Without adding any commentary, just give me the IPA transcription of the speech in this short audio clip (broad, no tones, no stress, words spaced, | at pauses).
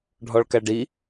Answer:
ɖʱɔɭkæɖi